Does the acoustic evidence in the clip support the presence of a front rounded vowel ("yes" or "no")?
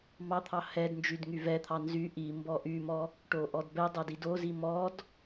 yes